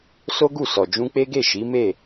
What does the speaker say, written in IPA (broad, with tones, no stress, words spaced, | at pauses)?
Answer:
so˦ɡu˦˨sɔ˨ d͡ʒũ˧k͡pe˦ɡe˦˨ ʃi˨˦me˦˨